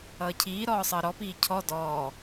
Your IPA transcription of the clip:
ʌːcʰiː ɾɔːsˤəːɾɔ piːcʰɔ dɔː

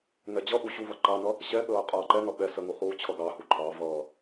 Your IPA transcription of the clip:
ŋɛd͡ʑʌʔu ɕuvʌ ǃɑnʌ | ɕɛɠəː qʼʌːǃɛŋʌ ɓɛ səŋu χuːt͡ɕʰʌɡɑhu ǃʰɑvʌː

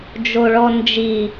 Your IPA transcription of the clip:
d͡ʒoɭɔnd͡ʒi

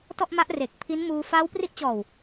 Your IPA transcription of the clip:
tɔ˥˩ʔma˦˥ʔre˨˩k̚ pʰi˦˥n muː˧ faː˦˥wpri˦˥ʔt͡ɕɔː˨˩w

